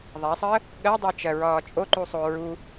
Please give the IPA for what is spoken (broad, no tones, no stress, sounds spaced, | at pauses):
ðˤ a sˤ əː | ɠ ɜ dˤ əː t͡ʃ ɜ ɹ ɒː t͡ʃʼ o ǃ u sˤ o ɹ u